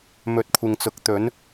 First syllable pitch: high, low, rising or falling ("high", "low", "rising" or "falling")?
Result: rising